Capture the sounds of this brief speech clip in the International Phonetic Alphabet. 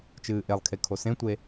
t͡ʃ ɨː ʔ e lˠ kʰ e kʰ o s ẽ tʷ e

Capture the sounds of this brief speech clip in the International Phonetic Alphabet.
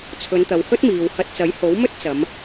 t͡sʰ ɵ˨˧ n t̪ ɐ˨ w h ɵ˥ t̚ m iː˨ w h ɐ˧ t̚ t͡s ɐ˨˥ j h o˨˥ w m ɵ˥ t̚ t͡s ɐ˨˧ m

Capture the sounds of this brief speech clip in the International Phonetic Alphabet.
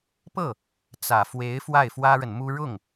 p ɤ˥˩ | t͡s ä˨˩ f w e˧˥ ɪ̯ f w a˥˩ ɪ̯ f w ä˥ ɻ ə˨ n m u˥ ɻ ʊ˥˩ ŋ

